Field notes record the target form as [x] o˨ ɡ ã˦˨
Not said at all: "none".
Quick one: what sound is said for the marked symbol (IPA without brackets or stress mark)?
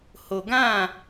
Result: h